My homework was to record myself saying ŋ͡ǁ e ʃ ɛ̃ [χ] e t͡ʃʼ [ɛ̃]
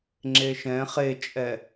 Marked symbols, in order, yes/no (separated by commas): yes, no